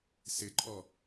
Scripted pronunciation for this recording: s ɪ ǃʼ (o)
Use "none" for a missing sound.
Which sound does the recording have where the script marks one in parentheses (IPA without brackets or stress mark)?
ɔ